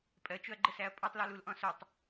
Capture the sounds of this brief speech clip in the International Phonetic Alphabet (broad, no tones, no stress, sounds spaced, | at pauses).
pʼ ɜ t͡ʃ ʊ ɐ̯ ɡ͡ǃ ə s æ ɐ̯ pʼ ɒ tˤ l ɔ l u l ʔ ɔ̃ s ʊ tˤ